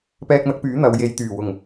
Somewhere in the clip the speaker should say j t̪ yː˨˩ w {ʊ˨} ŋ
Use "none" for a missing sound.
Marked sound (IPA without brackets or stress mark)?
ʊ˨˩